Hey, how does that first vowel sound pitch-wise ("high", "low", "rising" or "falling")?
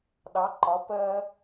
rising